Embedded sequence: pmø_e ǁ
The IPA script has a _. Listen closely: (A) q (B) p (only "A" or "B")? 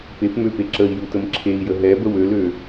B